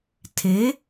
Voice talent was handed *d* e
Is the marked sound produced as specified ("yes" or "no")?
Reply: no